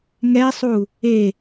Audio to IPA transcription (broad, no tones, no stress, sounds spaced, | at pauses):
ŋ ɛ sˤ u | e